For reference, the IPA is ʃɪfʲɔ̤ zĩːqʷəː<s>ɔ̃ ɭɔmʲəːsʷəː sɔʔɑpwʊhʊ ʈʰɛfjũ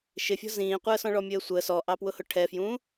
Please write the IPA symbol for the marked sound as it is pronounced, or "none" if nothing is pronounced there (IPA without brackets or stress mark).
s